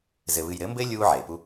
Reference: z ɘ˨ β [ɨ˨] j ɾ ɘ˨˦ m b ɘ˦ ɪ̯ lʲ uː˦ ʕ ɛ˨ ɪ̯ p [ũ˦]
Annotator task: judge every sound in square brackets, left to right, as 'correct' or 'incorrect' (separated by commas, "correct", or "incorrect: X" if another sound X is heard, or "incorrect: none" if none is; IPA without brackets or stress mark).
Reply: correct, incorrect: u˦